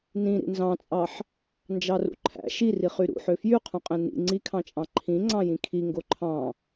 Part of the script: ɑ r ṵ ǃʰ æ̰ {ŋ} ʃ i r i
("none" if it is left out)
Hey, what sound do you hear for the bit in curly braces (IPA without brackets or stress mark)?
none